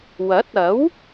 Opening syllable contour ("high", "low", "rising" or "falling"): rising